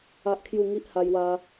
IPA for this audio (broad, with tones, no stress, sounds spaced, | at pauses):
a˦ ʔ kʰ j u˥˧ ŋ i˦ ʔ h a˧ j w a˧